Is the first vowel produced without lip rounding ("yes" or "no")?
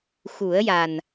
no